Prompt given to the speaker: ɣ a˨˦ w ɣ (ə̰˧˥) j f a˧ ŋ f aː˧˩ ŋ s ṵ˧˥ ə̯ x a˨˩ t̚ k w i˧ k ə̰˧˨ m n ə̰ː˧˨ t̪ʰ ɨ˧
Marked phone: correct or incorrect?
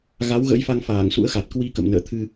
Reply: correct